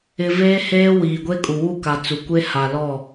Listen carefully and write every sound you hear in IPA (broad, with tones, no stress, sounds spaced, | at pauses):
ɪ˨ v eː˦ h eː˦ w iː˨ ɡʷ e˦ kʼ u˨ w u˦˨ k a˨ t͡s u˨ kʷ e˦ h a˨ l ɔ˦˨